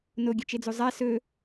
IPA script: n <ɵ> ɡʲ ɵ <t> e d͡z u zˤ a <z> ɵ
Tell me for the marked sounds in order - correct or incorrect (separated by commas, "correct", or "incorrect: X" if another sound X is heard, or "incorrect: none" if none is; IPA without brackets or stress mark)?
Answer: incorrect: o, incorrect: t͡ʃ, incorrect: s